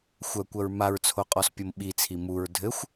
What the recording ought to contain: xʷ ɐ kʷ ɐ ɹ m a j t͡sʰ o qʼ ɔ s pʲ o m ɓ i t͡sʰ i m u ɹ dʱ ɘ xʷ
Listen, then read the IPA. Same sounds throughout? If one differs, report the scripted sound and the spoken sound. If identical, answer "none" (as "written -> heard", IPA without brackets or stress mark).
j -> ɹ